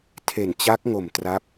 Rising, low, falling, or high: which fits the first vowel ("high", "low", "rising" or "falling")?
low